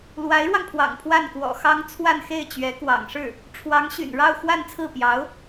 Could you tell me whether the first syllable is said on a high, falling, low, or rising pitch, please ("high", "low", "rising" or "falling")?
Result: rising